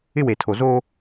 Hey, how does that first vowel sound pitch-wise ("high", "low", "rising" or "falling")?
high